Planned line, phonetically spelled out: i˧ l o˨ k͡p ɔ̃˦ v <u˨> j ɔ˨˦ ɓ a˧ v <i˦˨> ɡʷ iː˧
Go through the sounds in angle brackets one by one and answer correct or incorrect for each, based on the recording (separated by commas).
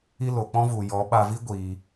correct, incorrect